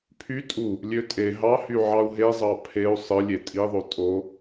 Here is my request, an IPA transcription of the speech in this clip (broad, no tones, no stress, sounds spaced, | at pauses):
pʰ y tʼ u | lʲ ø tʼ e ɦ ɑ h y ʕ ɑ u̯ ɦ e zˤ ɑ pʰ e u̯ sˤ ɯ lʲ e tʼ i ðˤ o tʼ o